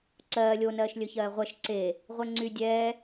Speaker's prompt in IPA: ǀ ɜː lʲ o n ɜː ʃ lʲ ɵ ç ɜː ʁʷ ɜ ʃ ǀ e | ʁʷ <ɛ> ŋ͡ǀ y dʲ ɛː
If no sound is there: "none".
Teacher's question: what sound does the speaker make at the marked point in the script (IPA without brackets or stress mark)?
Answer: ɛ